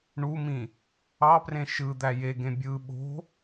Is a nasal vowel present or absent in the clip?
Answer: present